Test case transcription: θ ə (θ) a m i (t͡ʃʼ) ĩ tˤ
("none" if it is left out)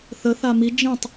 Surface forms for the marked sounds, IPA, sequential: θ, d͡ʒ

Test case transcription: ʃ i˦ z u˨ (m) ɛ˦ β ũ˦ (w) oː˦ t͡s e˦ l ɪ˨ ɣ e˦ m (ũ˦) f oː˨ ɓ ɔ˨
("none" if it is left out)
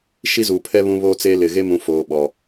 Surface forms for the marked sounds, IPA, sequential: pʰ, β, ũ˨˦

